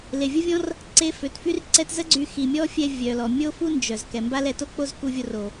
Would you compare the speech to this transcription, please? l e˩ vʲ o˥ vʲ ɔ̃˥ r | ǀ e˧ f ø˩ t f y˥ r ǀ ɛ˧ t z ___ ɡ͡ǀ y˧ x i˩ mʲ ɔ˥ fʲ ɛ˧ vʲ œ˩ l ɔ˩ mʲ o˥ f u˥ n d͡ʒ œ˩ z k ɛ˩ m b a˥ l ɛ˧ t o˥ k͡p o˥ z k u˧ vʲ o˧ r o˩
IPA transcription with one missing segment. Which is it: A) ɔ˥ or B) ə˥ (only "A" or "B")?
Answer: B